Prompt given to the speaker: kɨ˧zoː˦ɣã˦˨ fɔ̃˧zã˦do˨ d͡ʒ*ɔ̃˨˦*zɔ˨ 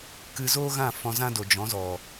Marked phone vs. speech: correct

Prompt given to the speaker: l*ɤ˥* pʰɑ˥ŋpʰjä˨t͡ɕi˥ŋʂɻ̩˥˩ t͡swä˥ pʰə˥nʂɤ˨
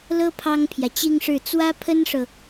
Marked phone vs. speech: correct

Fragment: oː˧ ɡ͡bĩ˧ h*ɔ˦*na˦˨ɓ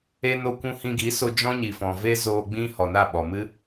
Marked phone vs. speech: incorrect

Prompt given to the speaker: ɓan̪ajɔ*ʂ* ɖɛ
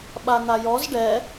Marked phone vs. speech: incorrect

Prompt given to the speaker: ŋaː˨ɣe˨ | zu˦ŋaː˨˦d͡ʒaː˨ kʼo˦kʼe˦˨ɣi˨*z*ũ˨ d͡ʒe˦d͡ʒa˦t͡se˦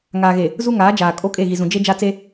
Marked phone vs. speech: correct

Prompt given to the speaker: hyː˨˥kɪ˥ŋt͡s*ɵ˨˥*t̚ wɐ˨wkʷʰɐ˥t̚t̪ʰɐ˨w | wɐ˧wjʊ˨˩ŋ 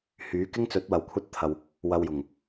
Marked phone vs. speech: correct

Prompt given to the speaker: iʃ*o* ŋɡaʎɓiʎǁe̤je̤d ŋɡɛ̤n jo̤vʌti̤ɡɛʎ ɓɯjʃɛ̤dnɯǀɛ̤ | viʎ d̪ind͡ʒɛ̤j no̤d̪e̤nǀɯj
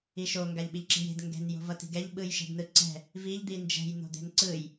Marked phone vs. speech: correct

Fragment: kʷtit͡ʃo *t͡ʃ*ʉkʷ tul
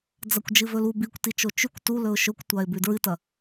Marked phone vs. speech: correct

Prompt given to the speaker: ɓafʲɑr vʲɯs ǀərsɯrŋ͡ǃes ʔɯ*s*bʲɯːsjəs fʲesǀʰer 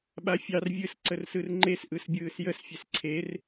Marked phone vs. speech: correct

